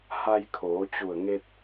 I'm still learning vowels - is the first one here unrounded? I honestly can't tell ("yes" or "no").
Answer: yes